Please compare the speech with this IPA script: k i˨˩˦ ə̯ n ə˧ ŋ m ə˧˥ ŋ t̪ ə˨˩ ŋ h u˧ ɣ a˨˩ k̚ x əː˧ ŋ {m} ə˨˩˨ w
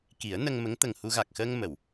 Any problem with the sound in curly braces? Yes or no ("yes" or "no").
no